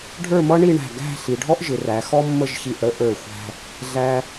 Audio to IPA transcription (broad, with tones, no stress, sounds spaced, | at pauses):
ɖʱ ə˞˥˧ m ʌ˥ ɳ i˥˧ ɳ æ̤˧˩ ɡ æ̤˥˧ ɬ i˩˧ ɖʱ ɔ˥ ʔ ʒ ɪ˩˧ r æ˩˧ x ɔ˥ mː ə˥˧ ʒ ç i˧˩ ʔ ɽ ə˥ ʔ ə˞˧˩ xʷ æ̤˧ | ɮ æ˧